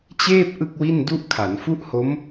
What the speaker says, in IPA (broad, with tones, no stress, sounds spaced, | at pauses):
t͡ɕ eː˥˩ p̚ ʔ ɯ˥˩ k̚ w i˥˩ n d u˥˩ ʔ kʰ a˩˦ n f u˥˩ ʔ h o˦˥ m